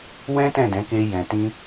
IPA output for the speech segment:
w ɛ̃˦ t ɛ̃˦˨ d ɛ̃˨˦ k e˧ j ɛ̃˨ t ĩ˧

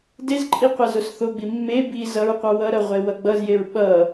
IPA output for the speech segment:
d e z ǃʼ i qʷ a z o s θ o ɡ͡b i mː e b i z ʌ ɹ qʷ ʌ w ʌ ɾ ʌ ʁʷ e w ʌ ɡ͡b ʌ z j e ɹ ɓ ʌ

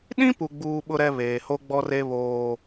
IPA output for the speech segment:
ɗ ĩ˦ p u˨ ɡ͡b uː˦ ɓ ʊ˦ ɾ ɛ˦ β eː˨ h o˦ ɡ͡b ɔ˦ r e˦ β oː˦

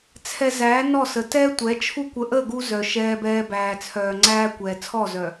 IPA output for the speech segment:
t͡sʰ ɛ˨ z æː˨˦ n ɔ˦˨ s ə˨ t ɛː˦ tʷ ɛ˨˦ t͡ʃʰ u˦ kʷ ə˨ ʔ əː˦˨ ɡ u˦ z œ˨ ʃ ɛː˦ b ɛː˦ b æː˨ t͡sʰ œː˨ ŋ͡ǀ æː˦ kʷ ɛː˨ t͡sʰ ɔ˦˨ z œ˨

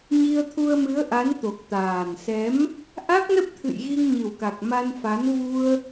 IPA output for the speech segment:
ɲ i˧ ə̯ t̪ʰ u˧ ə̯ m ɨ˨˦ ə̯ ʔ a˨˦ n t̪ o˨˩ k̚ t̪ aː˨˩ n s ɛ˨˦ m | ʔ a˦˥ k̚ n ə˦˥ p̚ t̪ʰ ɨ̰˧˨ j ɣ i˧ ŋ ɲ ɨ˨˩ w k a˨˩ k̚ m a˧ n f a˨˦ n v u˧ ə̯

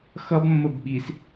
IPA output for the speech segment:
x ʌ b mː ə b ɓ i s

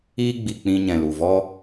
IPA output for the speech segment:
iː˦ ɡ͡b i˨ k͡p ĩ˧ ɲ ɛ̃˨ l u˨ v ɔ˦

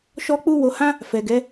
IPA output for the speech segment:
ʃ ɔ˧ k͡p u˧ w o˧ h ã˦ | f ɛ˨ ɡ ɛ˨˦

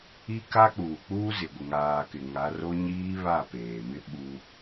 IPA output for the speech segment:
i˦ k a˦ k͡p uː˨ k͡p uː˦ z ɪ˨ ɡʷ ɪ˨ ŋ aː˨ k ɪ˨ ŋ a˨˦ r o˦ ɲ iː˦ β a˦˨ p eː˨ m ɪ˦ ɓ u˦

